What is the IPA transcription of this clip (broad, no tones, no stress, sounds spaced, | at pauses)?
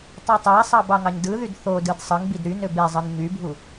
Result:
tˤ y tˤ æ sˤ ɑ b ɑ ŋ ɑ ɲ d ɯ ð y d θ o d ɯ d sˤ ɯ ŋ b i d ɾ y n ø b e zˤ ɯ n ɲ y bʱ u